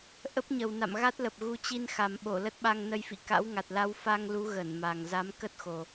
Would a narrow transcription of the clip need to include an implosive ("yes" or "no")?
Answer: yes